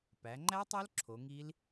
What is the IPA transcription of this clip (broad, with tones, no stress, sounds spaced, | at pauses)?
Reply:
p æ˩˧ ŋ͡ǃ æ˦˥ tˤ o˦˥ l ǁʰ o˩˧ ŋ i˦˥ l